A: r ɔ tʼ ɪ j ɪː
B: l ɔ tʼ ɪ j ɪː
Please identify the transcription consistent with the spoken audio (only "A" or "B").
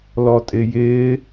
B